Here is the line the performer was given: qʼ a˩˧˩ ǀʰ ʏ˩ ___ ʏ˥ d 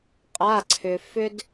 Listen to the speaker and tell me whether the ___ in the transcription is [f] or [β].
f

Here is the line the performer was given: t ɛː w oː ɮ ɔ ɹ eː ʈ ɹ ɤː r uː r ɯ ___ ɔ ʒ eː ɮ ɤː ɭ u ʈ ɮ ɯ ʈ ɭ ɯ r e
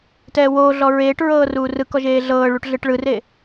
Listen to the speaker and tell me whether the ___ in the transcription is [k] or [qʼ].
k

